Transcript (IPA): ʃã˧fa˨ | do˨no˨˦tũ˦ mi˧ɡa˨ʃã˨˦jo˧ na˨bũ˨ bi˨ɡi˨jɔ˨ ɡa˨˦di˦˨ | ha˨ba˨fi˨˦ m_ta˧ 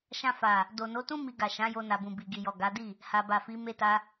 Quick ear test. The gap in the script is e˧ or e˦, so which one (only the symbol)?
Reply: e˧